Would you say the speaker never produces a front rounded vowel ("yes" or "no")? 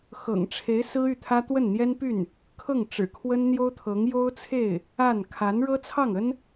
no